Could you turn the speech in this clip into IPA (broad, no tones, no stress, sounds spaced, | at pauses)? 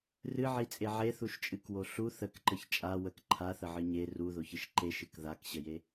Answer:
r ɨ ʕ i t͡sʼ e ʕ e θ u ʃ t͡ʃʼ ɨ k w o ɬ u θ ə k ǃ ə ç t͡ʃʼ a w ə k ǃʰ a θ ə ʕ ɨ ɲ e r u ð o ç ɨ ʃ ǃ e ʃ ɨ k ð a k ɕ ə j e